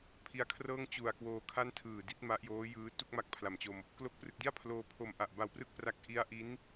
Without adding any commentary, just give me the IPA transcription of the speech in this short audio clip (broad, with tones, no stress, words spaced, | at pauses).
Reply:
pʰi˧a̯kʰrɤː˥˩ŋt͡ɕu˨˩a̯ kwoː˧kʰa˥˩ntʰɯː˨˩ di˦˥t̚ma˦˥ʔjoː˦˥jɯː˦˥ tu˥˩k̚ma˦˥k̚pʰla˨˩mt͡ɕo˧m | klo˦˥k̚prɯ˨˩k̚di˥˩a̯ pʰloː˧pʰo˧m ʔa˨˩ʔba˧wprɯ˥˩k̚pra˦˥k̚ ʔi˦˥a̯ ʔi˦˥n